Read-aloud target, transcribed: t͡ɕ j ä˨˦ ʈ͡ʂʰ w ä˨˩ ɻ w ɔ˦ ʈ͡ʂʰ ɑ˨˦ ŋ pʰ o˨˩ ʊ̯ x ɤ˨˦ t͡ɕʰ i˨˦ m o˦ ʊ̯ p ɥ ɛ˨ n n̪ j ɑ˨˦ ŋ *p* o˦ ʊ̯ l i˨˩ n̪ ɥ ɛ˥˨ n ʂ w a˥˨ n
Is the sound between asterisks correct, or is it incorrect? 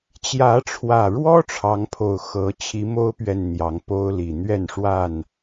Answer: correct